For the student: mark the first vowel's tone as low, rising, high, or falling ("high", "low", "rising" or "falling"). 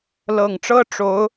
low